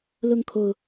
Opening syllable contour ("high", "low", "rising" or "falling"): falling